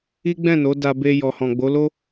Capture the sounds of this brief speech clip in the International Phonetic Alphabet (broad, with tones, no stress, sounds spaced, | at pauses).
i˦ ɡ͡b ɛ̃˦˨ n o˨˦ d a˧ b e˧ j ɔ˨ h ɔ̃˨ ɡ͡b o˨˦ l o˦